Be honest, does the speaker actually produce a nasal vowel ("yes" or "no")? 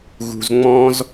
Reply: yes